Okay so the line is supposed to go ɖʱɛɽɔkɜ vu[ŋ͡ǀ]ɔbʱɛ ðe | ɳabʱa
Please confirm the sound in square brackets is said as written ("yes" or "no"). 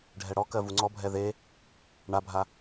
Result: yes